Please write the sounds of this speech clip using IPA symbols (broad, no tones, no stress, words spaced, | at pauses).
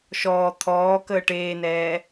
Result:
ʃɔː t̪ʰɔː kəːʈeːnɛː